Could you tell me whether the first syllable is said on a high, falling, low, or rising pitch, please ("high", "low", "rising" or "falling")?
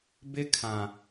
high